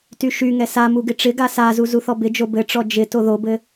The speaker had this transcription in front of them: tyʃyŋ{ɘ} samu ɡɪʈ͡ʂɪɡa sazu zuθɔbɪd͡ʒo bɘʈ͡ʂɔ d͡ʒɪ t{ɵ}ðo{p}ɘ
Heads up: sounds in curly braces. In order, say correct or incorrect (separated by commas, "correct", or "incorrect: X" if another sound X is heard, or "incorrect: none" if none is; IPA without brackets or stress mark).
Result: incorrect: ɛ, incorrect: o, incorrect: b